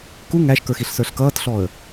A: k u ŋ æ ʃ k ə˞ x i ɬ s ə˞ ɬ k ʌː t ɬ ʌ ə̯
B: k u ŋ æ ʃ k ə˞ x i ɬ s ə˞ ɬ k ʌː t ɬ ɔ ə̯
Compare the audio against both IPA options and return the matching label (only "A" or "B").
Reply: B